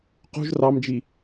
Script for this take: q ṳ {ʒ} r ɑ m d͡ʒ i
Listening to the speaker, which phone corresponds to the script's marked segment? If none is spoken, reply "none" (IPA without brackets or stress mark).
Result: ʒ